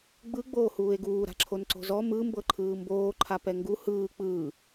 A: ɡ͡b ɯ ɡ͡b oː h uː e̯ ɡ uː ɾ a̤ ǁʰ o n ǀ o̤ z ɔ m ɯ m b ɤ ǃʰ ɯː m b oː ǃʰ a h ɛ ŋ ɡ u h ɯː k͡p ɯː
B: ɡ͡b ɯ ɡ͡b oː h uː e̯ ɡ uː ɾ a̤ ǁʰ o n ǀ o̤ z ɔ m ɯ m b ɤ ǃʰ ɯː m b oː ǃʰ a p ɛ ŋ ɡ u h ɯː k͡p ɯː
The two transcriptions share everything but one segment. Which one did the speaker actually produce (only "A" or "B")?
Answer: B